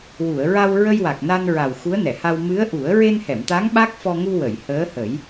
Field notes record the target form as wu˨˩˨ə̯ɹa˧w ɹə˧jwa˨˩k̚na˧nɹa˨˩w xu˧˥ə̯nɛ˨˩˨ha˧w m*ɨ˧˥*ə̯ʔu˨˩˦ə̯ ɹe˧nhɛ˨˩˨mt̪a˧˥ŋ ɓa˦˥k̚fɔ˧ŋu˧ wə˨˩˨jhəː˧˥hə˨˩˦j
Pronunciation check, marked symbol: correct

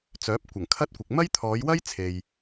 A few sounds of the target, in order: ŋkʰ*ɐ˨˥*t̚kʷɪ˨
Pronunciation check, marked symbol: incorrect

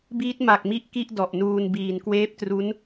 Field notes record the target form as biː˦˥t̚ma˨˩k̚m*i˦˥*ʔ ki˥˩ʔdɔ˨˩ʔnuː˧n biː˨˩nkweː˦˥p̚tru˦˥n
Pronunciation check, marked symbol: correct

